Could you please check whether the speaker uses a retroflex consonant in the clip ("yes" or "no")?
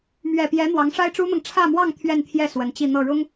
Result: yes